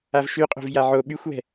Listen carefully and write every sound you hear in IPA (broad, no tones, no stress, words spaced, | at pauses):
avʃyqʼo̤v jaʕo ɓyxʷwɛ̤